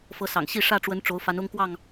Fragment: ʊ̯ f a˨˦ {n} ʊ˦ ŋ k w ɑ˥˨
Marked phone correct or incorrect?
correct